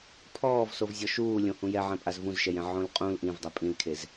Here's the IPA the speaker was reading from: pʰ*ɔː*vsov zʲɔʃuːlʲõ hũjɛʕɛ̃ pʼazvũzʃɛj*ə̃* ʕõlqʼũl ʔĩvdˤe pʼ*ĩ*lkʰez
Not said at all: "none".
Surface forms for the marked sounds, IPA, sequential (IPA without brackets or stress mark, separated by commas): ɔː, ɛ̃, ĩ